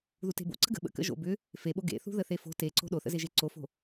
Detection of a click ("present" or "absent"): present